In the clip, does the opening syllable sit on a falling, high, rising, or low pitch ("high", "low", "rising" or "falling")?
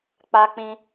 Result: high